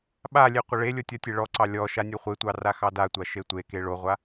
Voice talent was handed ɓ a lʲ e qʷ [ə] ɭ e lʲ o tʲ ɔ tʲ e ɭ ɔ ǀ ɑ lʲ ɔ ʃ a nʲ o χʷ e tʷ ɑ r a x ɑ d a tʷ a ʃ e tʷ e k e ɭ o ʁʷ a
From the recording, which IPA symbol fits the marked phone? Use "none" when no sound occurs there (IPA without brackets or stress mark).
ə